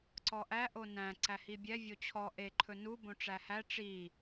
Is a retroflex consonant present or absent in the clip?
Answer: present